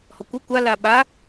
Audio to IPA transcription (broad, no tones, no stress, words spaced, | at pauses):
hɔkʷœ kʷa laɓa